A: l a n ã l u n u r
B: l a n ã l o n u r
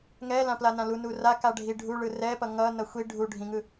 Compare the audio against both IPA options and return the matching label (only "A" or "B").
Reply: A